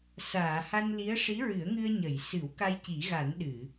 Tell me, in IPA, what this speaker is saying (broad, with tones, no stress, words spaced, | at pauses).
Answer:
saː˨˩˨ha˧nli˧˥ə̯ ʂi˧˥ɹɨ˨˩˦ə̯ŋɨ˧ə̯ ɲə˨˩˨jsɨ˨˩˦wka˧j ci˨˩˦ɣa˨˩˦n ɗɨ˨˩˨